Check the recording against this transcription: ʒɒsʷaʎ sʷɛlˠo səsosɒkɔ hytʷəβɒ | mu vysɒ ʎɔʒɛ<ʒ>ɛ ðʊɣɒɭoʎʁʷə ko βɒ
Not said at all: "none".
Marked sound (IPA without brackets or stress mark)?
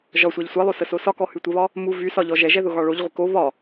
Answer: ʒ